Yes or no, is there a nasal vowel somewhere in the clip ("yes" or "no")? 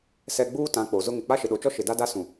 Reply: yes